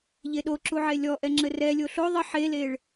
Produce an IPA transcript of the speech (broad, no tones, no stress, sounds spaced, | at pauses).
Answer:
ʎ e ɗ o ǁ u ʕ e lʲ ɔ ʔ ɛ ŋ͡ǁ ɘ r ɛ lʲ o ɬ o ðˤ ə ħ e l e ɭ